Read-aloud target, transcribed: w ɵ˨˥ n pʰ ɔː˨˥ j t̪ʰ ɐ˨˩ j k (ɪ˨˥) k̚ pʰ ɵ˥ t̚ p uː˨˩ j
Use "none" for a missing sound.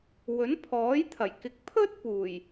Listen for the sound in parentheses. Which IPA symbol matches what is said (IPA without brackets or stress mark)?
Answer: ɪ˨˥